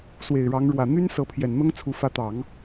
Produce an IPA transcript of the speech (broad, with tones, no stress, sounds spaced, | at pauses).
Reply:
s w e˨˩ ɪ̯ ɻ ɑ˧˥ ŋ ɻ w ä˨˩ n̪ y˥ n s ɤ˧˥ pʰ j ɛ˨˩ n n̪ ɤ˥ ŋ t͡sʰ u˧˥ f ä˧˥ t̪ ɑ˨˩˦ ŋ